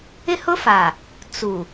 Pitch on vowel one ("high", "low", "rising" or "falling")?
high